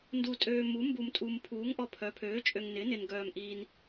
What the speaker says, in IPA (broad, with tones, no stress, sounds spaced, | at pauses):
n d u˨ tʼ øː˨ m u˩˥ m b u˨ m tʼ u˨ m pʰ uː˩˥ ŋ ʔ ɔ˨ pʰ œ˩˥ pʰ øː˩˥ t͡ʃʼ ø˨ ŋ n ɪ˩˥ n ɪ˨ n ɡ œː˨ m ʔ iː˨ n